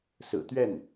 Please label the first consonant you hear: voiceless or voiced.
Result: voiceless